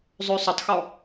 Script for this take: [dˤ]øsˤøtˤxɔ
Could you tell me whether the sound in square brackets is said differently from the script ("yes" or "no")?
yes